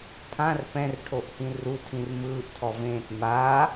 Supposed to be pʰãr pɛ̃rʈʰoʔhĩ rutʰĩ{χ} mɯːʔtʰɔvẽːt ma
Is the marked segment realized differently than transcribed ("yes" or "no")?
yes